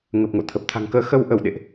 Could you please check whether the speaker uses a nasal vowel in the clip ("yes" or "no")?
no